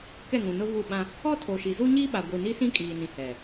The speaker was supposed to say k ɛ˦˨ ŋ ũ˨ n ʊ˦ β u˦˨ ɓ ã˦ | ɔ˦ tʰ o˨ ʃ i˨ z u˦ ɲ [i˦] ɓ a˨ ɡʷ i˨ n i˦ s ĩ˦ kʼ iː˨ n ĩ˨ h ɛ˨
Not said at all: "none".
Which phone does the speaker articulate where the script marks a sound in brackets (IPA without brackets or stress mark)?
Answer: i˦